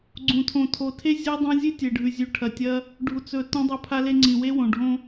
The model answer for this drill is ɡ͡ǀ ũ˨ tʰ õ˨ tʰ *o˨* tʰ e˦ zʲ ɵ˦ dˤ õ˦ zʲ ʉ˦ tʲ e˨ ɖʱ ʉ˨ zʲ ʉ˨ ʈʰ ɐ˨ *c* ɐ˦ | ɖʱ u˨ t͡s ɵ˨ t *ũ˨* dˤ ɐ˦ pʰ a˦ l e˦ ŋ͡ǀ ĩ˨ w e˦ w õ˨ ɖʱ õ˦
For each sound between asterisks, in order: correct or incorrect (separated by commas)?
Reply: correct, incorrect, incorrect